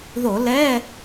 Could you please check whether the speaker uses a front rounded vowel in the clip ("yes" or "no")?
no